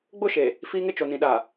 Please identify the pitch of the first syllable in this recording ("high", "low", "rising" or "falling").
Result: falling